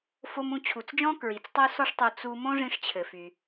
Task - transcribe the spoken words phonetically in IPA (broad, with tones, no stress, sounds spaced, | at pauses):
f o˧ m ũ˧ t͡ɕʰ u˩ t͡s d͡ʒ ɔ̃˥ k ɹ i˩ t͡s tˤ o˥ s ɔ˥ ʂ tˤ o˧ t͡s u˧ m õ˥ ʐ ĩ˧ ʂ t͡ɕʰ ɘ˩ f y˩